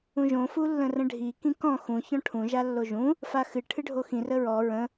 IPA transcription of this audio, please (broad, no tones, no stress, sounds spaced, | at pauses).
ũ ʒ õ f u lː ə̃ r ə̃ ɖʱ i k ĩ k ɔ̃ x ũ ç ɔ̃ ʈʰ ũ ʒ a lː o ʒ ũ | f a x ɨ ʈʰ ɨ ɖʱ o x ĩ r ə ɹ ɔ ɹ ə̃